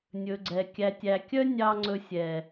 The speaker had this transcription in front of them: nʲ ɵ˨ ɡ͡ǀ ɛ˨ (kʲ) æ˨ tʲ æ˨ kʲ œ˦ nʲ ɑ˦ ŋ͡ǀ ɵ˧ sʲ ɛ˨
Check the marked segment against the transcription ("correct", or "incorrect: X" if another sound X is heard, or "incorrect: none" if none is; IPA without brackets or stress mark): correct